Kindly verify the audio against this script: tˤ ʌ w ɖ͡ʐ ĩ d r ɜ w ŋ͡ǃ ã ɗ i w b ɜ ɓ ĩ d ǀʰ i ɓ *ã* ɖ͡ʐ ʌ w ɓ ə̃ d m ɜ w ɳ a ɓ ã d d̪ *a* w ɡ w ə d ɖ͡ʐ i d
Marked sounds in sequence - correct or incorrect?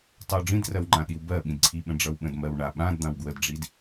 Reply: incorrect: ə̃, incorrect: ã

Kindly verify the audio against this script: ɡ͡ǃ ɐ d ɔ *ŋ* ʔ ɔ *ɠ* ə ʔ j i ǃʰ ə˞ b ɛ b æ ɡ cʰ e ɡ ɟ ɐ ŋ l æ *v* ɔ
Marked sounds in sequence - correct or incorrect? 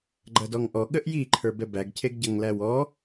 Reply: correct, correct, incorrect: w

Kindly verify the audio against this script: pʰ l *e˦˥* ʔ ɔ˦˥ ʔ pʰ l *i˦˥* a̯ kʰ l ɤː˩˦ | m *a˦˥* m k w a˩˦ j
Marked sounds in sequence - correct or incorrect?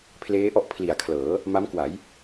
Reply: incorrect: eː˦˥, incorrect: i˨˩, correct

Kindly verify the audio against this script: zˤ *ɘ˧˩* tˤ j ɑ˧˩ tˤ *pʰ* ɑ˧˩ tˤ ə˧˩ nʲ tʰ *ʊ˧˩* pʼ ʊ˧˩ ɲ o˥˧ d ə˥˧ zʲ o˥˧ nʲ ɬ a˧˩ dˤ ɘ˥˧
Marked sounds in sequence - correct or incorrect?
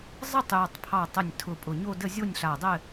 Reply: incorrect: ɘ˥˧, correct, correct

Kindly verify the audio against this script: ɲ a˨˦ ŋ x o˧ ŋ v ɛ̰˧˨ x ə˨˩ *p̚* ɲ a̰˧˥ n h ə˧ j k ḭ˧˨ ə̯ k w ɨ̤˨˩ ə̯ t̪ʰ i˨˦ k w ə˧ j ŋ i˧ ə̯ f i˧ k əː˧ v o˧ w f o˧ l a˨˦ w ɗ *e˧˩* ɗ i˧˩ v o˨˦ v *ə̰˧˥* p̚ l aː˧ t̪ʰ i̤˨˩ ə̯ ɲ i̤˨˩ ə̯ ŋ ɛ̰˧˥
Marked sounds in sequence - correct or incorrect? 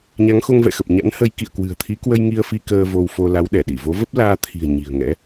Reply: correct, incorrect: ɛ˧˩, incorrect: ə˦˥

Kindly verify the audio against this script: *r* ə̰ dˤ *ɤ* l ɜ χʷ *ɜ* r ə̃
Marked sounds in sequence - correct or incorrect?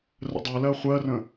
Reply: correct, correct, correct

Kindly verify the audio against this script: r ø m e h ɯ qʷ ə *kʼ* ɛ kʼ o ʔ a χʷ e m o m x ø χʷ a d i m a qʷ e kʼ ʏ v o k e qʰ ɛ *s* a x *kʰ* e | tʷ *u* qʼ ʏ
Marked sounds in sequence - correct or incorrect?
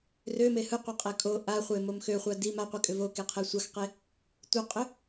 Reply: incorrect: qʼ, incorrect: sʷ, incorrect: q, incorrect: ɯ

